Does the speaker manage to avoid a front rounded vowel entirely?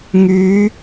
no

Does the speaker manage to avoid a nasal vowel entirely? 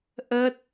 yes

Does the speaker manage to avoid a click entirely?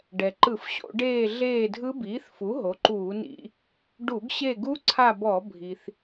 no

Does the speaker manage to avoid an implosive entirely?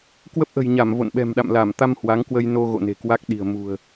no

